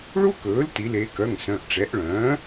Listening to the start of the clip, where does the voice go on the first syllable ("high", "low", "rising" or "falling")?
high